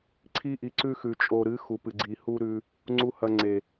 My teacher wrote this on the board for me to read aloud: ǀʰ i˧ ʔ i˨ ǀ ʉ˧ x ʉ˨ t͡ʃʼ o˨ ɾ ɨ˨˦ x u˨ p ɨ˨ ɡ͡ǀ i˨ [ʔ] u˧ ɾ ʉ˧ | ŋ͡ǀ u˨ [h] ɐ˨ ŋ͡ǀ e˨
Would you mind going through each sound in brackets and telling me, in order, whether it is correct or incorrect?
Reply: incorrect: h, correct

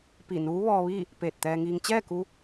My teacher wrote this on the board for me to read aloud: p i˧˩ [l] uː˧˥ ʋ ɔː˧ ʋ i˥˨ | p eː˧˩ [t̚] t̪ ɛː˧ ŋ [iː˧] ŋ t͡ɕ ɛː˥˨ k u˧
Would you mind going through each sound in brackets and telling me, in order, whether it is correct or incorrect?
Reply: incorrect: n, correct, correct

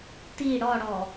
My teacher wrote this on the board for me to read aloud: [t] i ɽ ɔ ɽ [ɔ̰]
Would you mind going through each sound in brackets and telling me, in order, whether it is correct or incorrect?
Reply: correct, incorrect: ɔ

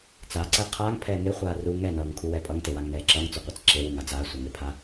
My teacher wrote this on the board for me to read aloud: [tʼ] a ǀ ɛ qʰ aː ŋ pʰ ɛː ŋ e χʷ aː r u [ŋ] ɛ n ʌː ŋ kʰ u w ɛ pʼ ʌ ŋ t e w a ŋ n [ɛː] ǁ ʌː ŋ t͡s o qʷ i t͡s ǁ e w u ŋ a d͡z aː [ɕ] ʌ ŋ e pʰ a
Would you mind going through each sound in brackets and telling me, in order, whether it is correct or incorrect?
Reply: incorrect: t͡s, correct, correct, incorrect: sʷ

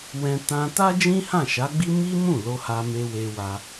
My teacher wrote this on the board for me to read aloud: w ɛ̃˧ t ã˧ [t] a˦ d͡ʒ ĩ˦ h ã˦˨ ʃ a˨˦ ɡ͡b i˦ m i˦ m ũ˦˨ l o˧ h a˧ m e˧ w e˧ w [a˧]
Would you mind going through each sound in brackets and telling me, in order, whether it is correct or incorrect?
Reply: correct, correct

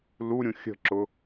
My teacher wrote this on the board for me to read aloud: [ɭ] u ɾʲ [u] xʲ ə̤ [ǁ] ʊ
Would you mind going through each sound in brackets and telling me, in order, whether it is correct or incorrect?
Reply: incorrect: l, incorrect: ũ, correct

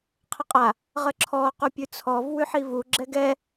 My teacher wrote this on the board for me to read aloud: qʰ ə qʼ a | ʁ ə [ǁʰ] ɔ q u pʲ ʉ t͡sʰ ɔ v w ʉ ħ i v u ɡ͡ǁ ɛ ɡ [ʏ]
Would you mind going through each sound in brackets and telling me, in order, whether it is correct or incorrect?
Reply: correct, incorrect: ɛ

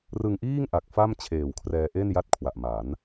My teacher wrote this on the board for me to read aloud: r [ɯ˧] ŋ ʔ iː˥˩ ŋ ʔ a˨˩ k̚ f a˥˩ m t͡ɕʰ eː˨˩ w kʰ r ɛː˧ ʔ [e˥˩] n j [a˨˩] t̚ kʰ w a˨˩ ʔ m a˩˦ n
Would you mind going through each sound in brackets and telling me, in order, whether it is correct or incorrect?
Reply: correct, correct, incorrect: a˥˩

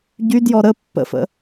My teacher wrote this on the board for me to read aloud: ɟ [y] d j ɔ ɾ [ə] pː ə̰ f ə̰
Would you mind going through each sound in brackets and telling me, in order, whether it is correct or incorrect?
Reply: correct, correct

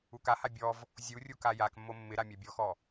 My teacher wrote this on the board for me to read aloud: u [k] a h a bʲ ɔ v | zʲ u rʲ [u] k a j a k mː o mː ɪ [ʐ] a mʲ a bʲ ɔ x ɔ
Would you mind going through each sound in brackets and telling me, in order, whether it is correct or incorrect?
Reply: correct, correct, incorrect: ɾ

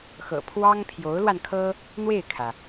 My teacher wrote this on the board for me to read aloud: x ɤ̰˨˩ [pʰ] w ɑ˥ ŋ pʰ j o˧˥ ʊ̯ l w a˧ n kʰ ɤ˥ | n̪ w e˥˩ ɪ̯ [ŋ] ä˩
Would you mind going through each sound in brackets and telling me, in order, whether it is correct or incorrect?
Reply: correct, incorrect: kʰ

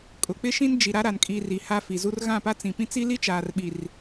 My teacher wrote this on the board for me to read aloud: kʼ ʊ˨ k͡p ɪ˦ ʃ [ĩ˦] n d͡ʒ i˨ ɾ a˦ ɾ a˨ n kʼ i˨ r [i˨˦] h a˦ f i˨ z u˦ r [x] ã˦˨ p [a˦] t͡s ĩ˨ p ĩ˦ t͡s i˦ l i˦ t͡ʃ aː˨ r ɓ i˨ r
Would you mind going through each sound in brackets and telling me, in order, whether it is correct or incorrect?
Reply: correct, incorrect: i˨, incorrect: ɣ, correct

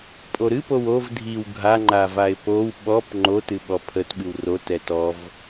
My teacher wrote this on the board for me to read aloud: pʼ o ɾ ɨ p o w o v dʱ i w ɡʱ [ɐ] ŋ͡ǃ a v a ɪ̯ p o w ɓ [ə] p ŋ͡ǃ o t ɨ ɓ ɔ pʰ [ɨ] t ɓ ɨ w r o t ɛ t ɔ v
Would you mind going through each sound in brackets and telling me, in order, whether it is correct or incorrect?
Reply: incorrect: a, incorrect: ɔ, incorrect: ə

